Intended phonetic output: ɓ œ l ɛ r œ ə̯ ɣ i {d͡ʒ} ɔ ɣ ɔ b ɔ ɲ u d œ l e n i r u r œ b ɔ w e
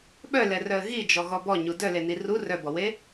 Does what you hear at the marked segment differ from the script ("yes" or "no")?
no